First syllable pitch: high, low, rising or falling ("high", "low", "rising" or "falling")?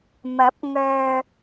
rising